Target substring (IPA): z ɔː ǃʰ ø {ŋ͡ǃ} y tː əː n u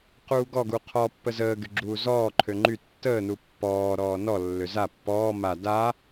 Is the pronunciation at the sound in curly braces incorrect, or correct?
correct